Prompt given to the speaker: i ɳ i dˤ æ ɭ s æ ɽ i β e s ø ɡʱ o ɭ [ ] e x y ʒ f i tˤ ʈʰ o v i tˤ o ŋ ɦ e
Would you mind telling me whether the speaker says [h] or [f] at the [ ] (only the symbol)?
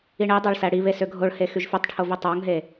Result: h